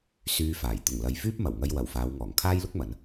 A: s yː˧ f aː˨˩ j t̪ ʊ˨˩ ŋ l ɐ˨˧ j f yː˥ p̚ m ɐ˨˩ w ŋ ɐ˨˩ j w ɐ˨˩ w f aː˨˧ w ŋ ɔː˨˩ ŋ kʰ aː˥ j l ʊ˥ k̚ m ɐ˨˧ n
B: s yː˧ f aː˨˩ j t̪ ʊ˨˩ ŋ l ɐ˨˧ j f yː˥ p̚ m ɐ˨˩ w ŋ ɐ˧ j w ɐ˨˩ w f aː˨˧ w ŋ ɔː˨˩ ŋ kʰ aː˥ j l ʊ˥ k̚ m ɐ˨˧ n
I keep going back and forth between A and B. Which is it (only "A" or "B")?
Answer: B